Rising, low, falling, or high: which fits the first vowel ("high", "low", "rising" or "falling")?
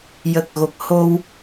low